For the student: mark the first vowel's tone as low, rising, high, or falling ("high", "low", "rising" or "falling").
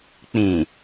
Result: low